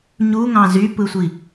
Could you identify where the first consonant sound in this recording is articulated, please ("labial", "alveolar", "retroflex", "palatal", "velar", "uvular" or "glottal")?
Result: palatal